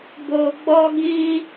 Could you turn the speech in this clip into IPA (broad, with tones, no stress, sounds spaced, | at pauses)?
b o˧ ɡ͡b ɔ˦ ɡ ĩ˦